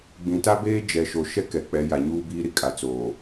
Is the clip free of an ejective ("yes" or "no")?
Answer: no